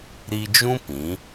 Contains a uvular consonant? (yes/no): no